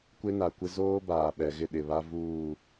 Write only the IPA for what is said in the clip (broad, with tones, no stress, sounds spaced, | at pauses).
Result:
kʷ e˦ n a˨ kʷ ɪ˦ z oː˦ b aː˨ ɓ ɛ˨ ɣ ɪ˦˨ ɗ ɪ˨ β a˦ v uː˦˨